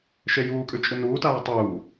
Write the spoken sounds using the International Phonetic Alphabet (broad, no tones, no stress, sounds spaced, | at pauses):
ʃ e j uː kʼ ʉ t͡ʃʼ ɨ n uː t aː tˤ uː